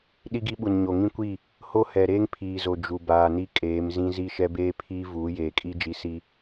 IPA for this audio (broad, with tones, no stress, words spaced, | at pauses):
ɗi˦ɡi˦ɓu˨n ɲo˨ ŋĩ˦kʷi˦˨ | ho˦hɛ˨ ɾeː˦ŋpʰiː˨zo˨ d͡ʒu˨baː˨ni˦ kʼeː˨˦mzĩ˦ zi˦˨ʃɛ˦beː˦pʰiː˦ vuː˨˦jeː˨kʼi˦ d͡ʒi˦si˦